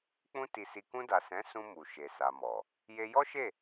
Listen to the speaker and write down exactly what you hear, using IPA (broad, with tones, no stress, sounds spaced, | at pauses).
k͡p ũ˧ t i˨ s i˨ k ũ˧ d a˨ s ɛ̃˨˦ s ũ˧ m u˨ ʃ e˨ s a˨ m ɔ˨ | j e˧ j ɔ˦ ʃ e˦˨